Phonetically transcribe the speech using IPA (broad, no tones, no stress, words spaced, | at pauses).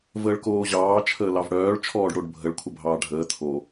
vəːɭkoːʑɑː t͡ʃʰəːlɑvɽœːɭ t͡ʃʰɔːɖɽoɖbʱəɭ kʷʰəbʱɑːɖʱəː tʰo